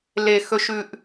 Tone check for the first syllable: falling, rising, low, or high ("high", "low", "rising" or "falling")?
low